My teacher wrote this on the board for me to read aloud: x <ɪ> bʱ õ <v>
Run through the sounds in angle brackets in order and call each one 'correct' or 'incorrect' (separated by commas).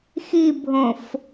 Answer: incorrect, incorrect